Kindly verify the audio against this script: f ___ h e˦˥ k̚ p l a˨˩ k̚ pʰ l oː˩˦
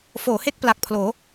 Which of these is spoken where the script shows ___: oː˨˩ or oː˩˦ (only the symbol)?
oː˩˦